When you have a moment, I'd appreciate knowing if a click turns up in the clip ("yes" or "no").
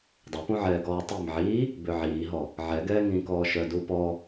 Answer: no